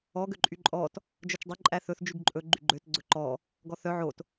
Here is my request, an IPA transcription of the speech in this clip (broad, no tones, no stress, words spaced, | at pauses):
ɔ ɡøǃʼyǃʼɔt | d͡ʒœt͡ʃdˤø ǃʼæθɵθ d͡ʒyɡǃʼɵ ɡ͡ǃyɡ͡ǃøt ɡ͡ǀɵǃɔ | ɡɔθœ ʕot